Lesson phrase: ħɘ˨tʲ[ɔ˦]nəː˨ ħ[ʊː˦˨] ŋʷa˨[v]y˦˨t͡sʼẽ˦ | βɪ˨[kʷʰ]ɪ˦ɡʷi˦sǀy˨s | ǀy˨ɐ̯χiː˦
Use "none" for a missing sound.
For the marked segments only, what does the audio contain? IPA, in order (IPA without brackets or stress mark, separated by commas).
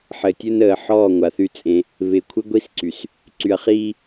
ɵ˦, ɔː˦˨, θ, kʷʰ